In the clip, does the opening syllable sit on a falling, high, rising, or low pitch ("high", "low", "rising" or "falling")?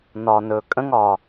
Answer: low